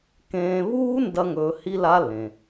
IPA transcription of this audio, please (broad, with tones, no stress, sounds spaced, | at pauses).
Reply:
k ẽː˧ β uː˦˥ n d ɐ˦˥ ŋ ɵː˧ h i˦˥ l a˦˥ l ẽ˩